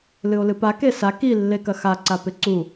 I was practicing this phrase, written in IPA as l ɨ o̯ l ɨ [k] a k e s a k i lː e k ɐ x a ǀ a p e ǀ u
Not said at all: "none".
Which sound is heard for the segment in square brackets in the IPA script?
p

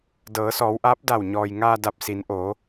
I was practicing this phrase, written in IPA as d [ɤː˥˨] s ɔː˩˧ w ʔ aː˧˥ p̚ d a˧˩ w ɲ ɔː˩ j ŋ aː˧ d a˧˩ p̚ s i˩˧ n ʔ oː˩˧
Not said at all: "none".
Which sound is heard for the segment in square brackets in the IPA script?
ɤː˩˧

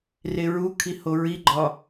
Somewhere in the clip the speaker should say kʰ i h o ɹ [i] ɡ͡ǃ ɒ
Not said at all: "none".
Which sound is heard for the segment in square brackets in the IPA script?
i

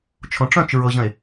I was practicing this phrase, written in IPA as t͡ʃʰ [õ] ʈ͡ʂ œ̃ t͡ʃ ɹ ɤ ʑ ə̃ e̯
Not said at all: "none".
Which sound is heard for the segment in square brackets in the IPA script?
õ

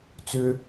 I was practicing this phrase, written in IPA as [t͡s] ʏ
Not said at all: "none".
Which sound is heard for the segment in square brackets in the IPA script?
t͡s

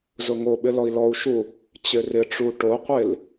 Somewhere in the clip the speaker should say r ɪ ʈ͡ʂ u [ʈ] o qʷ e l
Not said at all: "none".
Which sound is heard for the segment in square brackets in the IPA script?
ʈ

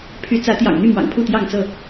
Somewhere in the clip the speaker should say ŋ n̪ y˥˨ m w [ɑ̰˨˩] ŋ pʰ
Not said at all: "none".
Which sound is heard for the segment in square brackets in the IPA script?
ɑ̰˨˩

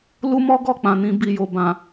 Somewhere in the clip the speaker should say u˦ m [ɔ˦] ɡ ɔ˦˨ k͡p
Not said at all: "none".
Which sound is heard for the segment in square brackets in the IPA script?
ɔ˦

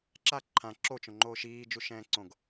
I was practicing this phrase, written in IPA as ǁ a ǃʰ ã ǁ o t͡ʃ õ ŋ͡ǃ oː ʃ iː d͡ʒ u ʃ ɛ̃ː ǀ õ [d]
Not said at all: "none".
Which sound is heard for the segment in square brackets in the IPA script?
ɡ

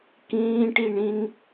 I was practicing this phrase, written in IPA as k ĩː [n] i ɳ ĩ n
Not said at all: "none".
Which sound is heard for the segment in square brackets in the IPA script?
ʈ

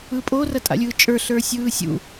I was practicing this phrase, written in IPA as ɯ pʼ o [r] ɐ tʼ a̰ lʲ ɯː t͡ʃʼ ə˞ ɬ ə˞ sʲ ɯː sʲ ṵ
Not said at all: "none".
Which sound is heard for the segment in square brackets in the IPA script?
r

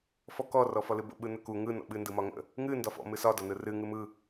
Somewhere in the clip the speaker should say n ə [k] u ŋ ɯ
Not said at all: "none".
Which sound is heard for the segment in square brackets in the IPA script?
k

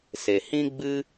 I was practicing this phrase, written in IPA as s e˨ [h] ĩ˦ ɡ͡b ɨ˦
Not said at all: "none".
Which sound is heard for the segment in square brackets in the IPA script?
h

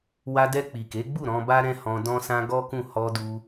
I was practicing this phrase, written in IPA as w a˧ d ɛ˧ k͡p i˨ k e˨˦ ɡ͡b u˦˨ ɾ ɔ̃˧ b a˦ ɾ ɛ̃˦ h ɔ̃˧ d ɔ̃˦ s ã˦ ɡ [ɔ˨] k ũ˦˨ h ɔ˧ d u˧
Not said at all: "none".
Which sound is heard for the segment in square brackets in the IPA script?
ɔ˦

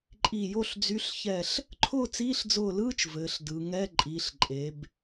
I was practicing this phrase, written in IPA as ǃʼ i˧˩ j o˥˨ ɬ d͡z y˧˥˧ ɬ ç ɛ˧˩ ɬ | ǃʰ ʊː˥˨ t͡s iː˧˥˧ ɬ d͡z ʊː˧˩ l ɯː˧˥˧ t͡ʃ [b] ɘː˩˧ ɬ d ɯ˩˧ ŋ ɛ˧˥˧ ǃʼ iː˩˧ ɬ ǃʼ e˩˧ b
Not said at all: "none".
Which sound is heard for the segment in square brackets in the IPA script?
v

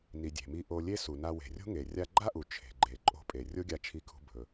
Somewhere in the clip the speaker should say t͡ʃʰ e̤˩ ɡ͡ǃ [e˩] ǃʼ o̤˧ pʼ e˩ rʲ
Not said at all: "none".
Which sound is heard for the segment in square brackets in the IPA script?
e˩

